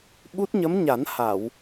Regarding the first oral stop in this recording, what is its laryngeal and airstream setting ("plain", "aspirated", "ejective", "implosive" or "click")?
implosive